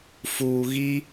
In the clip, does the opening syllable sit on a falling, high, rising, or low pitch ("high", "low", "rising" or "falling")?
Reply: low